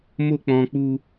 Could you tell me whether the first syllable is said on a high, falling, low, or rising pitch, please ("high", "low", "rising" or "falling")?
high